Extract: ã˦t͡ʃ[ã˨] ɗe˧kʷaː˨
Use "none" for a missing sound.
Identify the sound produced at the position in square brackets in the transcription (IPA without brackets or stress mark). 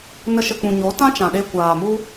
ã˨